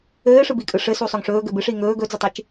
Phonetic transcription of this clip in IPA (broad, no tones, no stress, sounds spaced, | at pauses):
ɘː ʂ ɯ b i kʼ ɯ ʂ ɘ s u sˤ ɵ ŋ ʂ ɵː ɡ ɘ b ɨ ʂ iː ŋ ɵː ɡ ɵ d͡z ɵ tˤ ɨ t͡ʃ